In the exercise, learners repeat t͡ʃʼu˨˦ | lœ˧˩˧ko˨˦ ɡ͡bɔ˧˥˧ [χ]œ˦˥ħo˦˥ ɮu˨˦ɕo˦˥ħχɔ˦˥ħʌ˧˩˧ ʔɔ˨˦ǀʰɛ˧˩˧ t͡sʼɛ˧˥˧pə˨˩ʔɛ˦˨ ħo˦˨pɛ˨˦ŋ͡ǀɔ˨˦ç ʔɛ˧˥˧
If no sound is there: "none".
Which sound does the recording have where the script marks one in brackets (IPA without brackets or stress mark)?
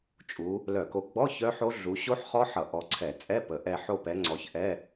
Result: ç